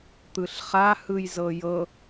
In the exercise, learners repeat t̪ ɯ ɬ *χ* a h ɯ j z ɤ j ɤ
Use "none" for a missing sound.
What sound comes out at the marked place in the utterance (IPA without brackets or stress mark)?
χ